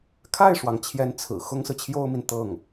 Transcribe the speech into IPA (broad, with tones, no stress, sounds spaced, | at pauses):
kʰ a˥˩ ɪ̯ ʂ w ɑ˩ ŋ t͡ɕʰ j ɛ˧˥ n t͡sʰ ɹ̩˨˩ x ʊ˥ ŋ s ɹ̩˨ t͡ɕʰ j o˥ ʊ̯ m i˨ n t̪ ɤ˥˩ ŋ